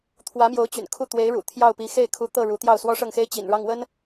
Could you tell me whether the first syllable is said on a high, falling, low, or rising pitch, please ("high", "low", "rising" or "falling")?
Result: rising